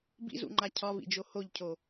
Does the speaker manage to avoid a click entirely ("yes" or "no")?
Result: no